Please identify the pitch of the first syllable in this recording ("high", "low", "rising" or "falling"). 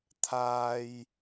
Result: low